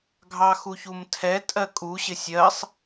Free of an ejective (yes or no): no